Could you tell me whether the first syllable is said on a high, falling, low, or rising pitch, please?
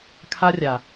high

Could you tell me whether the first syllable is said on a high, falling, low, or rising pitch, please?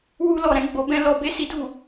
high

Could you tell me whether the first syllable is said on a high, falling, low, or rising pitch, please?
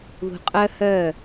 low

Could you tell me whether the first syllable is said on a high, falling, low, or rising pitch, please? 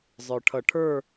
low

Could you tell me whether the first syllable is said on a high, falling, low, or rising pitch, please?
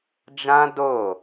high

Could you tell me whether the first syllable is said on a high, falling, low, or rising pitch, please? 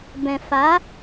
low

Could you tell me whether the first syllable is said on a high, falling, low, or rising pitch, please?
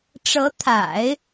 rising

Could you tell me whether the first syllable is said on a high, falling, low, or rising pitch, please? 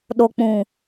low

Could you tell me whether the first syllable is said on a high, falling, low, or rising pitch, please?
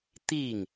falling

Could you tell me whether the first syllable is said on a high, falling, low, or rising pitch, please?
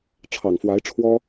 low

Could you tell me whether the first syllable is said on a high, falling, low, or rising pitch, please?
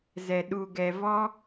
low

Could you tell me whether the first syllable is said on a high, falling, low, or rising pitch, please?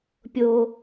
high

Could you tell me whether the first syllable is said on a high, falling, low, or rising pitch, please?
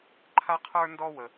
high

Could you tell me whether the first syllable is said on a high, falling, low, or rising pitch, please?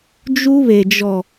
high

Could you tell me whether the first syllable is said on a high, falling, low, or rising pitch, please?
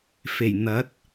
low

